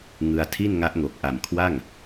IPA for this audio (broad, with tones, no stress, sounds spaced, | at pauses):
ŋ ɯ˧ a̯ tʰ i˥˩ n ŋ a˦˥ ʔ ŋ o˨˩ k̚ ʔ a˨˩ m kʰ w a˥˩ ŋ